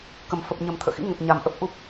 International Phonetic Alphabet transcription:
kə˨˩m fə˨˩p̚ɲə˨˩mt̪ʰə̰ː˧˨xḭ˧˥ ŋə˨˩t̚ɲa˨˩mʔə˦˥p̚ ʔu˦˥p̚

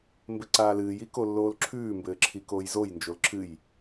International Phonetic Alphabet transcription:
mbɘǀaːlɨːj ikolːoːlǁʰʉː mbɘːǁʰikoːjzoj nd͡ʒolǁʰɨj

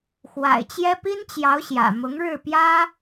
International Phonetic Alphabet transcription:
xwa̰˨˩ɪ̯t͡ɕjɛ˥ pi˥nt͡ɕjɑ˧˥ʊ̯ ɕjä̰˨˩ mʊ˧˥ŋɻɻ̩˥˩ pjä˥

